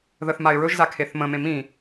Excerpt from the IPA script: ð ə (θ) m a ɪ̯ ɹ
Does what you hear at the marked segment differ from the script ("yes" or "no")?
no